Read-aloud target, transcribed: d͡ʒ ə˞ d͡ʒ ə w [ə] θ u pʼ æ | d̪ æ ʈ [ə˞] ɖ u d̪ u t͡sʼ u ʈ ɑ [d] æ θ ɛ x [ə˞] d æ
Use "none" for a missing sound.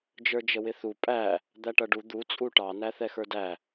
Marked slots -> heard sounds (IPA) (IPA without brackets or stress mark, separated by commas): ɪ, ʌ, n, ə˞